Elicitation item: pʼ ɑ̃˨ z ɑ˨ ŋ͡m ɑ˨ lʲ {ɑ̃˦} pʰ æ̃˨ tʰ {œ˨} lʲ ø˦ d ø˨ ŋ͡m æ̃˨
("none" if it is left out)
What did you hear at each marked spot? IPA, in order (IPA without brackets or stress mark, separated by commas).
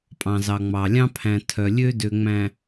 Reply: ɑ̃˦, œ˨